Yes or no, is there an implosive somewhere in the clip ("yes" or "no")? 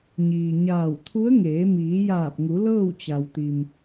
no